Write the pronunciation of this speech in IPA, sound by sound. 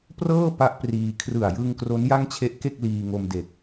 p r ɤː˥˩ p a˦˥ ʔ p r iː˧ kʰ r ɯ˨˩ a̯ j ɯ˧ ŋ k r o˦˥ n j a˥˩ ŋ t͡ɕʰ e˦˥ ʔ k e˥˩ k̚ l iː˧ ŋ o˧ m d e˨˩ k̚

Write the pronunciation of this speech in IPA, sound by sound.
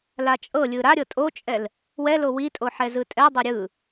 l a t͡ʃʼ ɤ lʲ ɯ ɾ a ɾʲ ɤ tʼ o t͡ʃʼ ɛ l | w ɛ l o w i tʼ o ħ ɛ z ɯ tʼ ɛ dˤ o ɾʲ ɯ

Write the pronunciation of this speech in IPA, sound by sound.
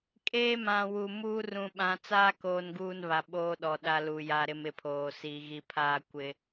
kʼ eː˦ m ã˨ w u˨ m uː˦ r ũ˨ ɓ ã˨ t͡s aː˦ k oː˦ n ɡ uː˦ n β a˨ ɓ oː˦ ɗ ɔ˨ ɗ a˦ l u˨ j a˦ ɾ ɪ˦ m ɪ˨ pʰ oː˨ s i˨ ɣ i˨ pʰ aː˦ kʷ ɪ˦

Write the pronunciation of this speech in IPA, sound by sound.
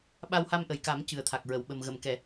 ɓ a˧ w h a˧ m ʔ ə˨˩ j k a˨˩˦ m c ɨ˨˩ ə̯ t̪ʰ a˨˩ k̚ ɹ ə˨˩˨ w ɓ ə˨˩ m ɣ ə˨˩˨ m k ɛ˨˩˨

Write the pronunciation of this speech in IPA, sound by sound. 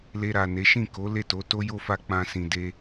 l e˧ ɾ a˨ n e˨˦ ʃ ĩ˦˨ k o˨˦ l e˦˨ t o˨˦ t o˦ j o˦ f a˦ k͡p ã˦ s ĩ˧ d e˦

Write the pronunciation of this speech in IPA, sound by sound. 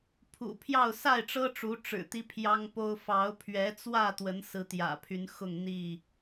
pʰ ṵ˨˩ pʰ j ɑ˥˨ ʊ̯ s a˥˨ ɪ̯ ʈ͡ʂ ɤ˦ ʈ͡ʂ u˨˦ ʈ͡ʂ ɻ̩˨˩ t̪ i˦ pʰ j ɑ˦ ŋ p o˦ ʊ̯ f ɑ˨˦ ʊ̯ pʰ ɥ ɛ˨˦ t͡s w ä˥˨ t̪ w ə˨˦ n s ɹ̩˨˦ t̪ j ä̰˨˩ pʰ y˨˦ n x ʊ˥˨ ŋ n̪ i˥˨

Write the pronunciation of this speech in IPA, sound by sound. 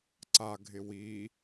ǀ a ɡʱ ɪ w i

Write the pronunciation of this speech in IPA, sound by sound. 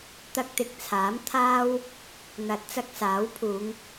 t̪ ɐ˧ k̚ t̪ ɪ˨ k̚ t͡sʰ aː˨˥ m t̪ʰ aː˥ w | n̪ ɐ˨˥ t̚ t͡s ɐ˧ k̚ s aː˨˥ w pʰ uː˨˧ ŋ

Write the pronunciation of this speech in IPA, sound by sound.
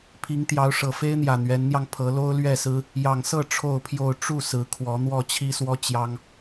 pʰ i˨˦ ŋ t̪ j ɑ˨˦ ʊ̯ ʂ ɤ˨˩ f e˦ ɪ̯ n̪ j ä˨˩ n̪ ɥ ɛ˨˦ n n̪ j ɑ˧ ŋ pʰ ɤ˨˦ l o˦ ʊ̯ l ɥ ɛ˥˨ s ɹ̩˦ | j ɑ˨˩ ŋ s ɤ˥˨ ʈ͡ʂʰ o˥˨ ʊ̯ pʰ j o˥˨ ʊ̯ ʈ͡ʂ u˥˨ s ɹ̩˨˦ kʰ w ɔ˨˦ n̪ w ɔ˥˨ t͡ɕʰ i˦ s w ɔ˦ t͡ɕ j ɑ˦ ŋ

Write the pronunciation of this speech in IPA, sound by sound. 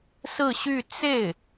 s ɹ̩˥˧ ɕ y˥˧ t͡s e˥˩ ɪ̯

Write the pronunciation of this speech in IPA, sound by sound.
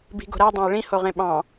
b i̤ ɡ o̤ ɾ æ dˤ ã e̯ ɭ ĩ h o ʁ ẽ ɓ ɑ̃

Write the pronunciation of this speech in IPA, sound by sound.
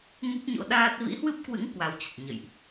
ŋ u˦˥ p̚ ɲ o̰˧˥ ɗ aː˦˥ t̚ v ḭ˧˥ h w ɨ˦˥ p̚ k w ɨ̰˧˥ ŋ k w a˨˦ w t͡ɕ ə˨˩ t̚ ɲ ə̰˧˨ j ʔ

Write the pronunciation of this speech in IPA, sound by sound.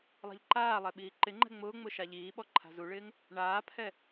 lˠ a̤ ʎ ǃ aː lˠ ɛ ɓ iː ǃ ɪ ŋ͡ǃ ɛ̤ ŋ͡m ʊː ŋ͡m ʊ ʃ a ʎ iː ɓ ɔ ǃʰ a̤ z u ɭ ɪː ŋ | ɳ aː pʰ ɛ

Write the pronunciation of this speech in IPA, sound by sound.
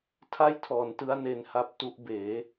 tʰ a˥˩ j tʰ ɔː˩˦ n t ɯ˦˥ a̯ n e˧ n h a˦˥ p̚ t u˦˥ ʔ b eː˩˦

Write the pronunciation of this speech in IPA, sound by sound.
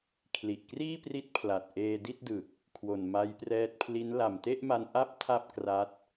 kʰ l i˨˩ ʔ k r iː˥˩ p r i˦˥ t̚ pʰ l a˨˩ t̚ ʔ eː˧ d i˥˩ t̚ d ɯ˨˩ k̚ | kʰ w o˨˩ n m a˦˥ j p r ɛː˦˥ t̚ pʰ l i˦˥ n l a˨˩ m t e˥˩ ʔ m a˧ n ʔ a˥˩ p̚ tʰ a˥˩ p̚ k r a˦˥ t̚

